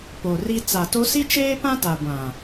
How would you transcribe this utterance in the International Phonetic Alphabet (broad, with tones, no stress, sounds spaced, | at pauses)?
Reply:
p o˨ r i˦ t͡s a˨ t o˦ s i˦ t͡ʃ eː˦ p ã˦ t a˨ ɡʷ ã˨